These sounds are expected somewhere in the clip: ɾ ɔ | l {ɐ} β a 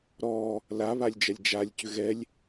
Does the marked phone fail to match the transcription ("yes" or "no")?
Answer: yes